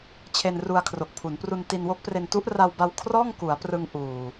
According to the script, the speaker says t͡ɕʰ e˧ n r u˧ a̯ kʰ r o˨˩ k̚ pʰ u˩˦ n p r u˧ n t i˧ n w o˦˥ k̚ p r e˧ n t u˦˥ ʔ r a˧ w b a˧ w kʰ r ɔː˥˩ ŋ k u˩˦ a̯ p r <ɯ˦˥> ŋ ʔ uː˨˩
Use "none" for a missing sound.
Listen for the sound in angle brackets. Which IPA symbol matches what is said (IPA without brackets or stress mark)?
ɯ˧